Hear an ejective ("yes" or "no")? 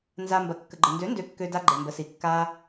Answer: no